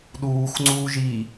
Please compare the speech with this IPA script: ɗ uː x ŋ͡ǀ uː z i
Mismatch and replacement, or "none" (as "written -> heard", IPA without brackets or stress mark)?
z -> ʒ